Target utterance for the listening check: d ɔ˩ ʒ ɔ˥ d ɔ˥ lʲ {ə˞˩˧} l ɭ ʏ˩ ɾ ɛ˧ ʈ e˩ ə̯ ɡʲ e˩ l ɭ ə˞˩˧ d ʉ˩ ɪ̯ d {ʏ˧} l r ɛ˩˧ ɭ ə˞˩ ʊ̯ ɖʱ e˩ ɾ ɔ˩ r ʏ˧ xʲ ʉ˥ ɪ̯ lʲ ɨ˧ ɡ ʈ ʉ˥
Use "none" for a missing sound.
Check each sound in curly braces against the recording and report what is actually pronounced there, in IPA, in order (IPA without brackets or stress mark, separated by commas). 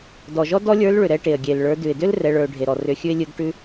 ə˞˧˥, ʏ˥